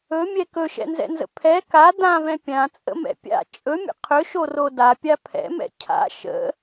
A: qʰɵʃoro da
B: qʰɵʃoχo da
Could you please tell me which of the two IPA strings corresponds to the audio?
A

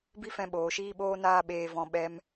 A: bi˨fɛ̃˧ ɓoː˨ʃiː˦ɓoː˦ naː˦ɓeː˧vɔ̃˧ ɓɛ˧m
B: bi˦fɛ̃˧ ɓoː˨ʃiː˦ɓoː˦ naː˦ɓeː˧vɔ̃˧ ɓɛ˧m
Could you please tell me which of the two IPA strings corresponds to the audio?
B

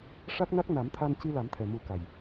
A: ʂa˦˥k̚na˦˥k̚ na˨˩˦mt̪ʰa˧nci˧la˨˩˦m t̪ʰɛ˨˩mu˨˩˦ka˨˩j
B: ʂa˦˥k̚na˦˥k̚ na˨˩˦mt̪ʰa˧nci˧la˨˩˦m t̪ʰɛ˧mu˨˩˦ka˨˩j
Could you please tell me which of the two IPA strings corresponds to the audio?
A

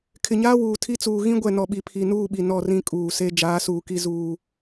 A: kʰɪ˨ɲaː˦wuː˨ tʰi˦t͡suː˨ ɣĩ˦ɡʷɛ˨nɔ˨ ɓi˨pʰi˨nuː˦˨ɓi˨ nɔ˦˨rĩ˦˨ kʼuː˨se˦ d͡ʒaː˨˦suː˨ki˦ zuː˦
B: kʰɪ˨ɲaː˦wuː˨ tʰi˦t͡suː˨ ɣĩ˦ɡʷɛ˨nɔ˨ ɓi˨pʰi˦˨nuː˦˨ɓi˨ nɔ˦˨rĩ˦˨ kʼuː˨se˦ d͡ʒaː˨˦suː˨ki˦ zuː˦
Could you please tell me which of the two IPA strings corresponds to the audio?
A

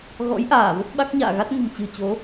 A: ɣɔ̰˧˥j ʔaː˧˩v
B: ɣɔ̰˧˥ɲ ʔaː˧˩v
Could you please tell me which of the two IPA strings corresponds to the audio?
A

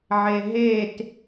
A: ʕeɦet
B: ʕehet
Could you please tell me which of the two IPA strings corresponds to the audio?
A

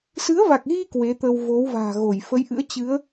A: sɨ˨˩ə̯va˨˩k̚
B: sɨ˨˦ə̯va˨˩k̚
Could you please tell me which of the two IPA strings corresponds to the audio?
B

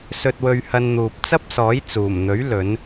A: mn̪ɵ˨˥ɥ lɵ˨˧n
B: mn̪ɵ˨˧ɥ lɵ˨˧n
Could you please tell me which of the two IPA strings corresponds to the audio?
A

